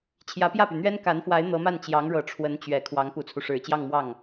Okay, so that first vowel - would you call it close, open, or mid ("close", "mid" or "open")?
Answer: open